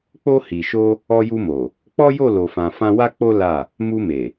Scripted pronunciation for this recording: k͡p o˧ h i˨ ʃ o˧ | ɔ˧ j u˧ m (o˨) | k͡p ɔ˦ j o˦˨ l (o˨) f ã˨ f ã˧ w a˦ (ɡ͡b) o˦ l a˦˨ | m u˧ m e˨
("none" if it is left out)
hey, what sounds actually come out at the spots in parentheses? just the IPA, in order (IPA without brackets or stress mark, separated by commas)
o˨, o˨, k͡p